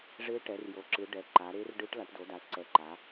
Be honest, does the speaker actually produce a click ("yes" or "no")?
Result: yes